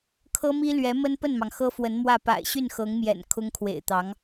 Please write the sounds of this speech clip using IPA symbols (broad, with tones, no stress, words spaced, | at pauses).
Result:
kʰɤ˥mi˥lɥɛ˧˥ mə˥npə˥˩nmɑ˩ŋ xɤ˥fwə˧˥n mwä˥˩ pa̰˨˩ɪ̯ɕy˥˩nxɤ˧˥ŋmjɛ̰˨˩n kʰʊ˥ŋkʰwḛ˨˩ɪ̯t̪ɑ˧˥ŋ